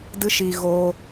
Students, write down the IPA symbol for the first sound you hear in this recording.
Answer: d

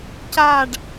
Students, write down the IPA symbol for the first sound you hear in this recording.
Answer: c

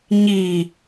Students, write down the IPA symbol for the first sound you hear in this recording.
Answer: ɲ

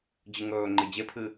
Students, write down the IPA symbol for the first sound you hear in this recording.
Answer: d͡ʑ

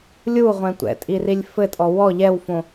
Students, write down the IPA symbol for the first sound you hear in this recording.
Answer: lʲ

